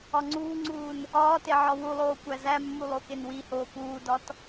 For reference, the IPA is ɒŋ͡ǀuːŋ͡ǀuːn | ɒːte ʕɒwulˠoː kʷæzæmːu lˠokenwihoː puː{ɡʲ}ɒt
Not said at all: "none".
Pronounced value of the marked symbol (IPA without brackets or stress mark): d